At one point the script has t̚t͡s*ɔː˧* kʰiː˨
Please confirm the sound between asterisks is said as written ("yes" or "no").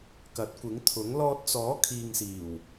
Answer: no